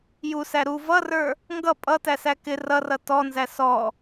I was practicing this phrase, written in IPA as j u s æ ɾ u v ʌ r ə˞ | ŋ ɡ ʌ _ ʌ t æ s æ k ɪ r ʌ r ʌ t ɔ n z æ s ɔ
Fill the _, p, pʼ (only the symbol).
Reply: pʼ